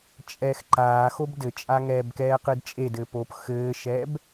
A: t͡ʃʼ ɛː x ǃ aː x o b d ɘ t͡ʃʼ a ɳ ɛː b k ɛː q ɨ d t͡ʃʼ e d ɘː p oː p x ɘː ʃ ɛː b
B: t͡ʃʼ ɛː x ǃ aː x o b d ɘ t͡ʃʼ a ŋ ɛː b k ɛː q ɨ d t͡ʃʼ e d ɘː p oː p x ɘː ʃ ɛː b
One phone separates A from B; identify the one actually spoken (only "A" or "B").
B